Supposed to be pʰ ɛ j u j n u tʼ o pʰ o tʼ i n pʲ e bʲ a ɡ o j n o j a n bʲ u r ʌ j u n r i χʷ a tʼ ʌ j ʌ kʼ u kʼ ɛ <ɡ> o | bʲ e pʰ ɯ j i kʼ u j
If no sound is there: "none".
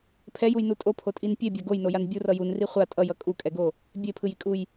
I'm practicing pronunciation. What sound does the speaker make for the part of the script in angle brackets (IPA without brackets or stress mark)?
ɡ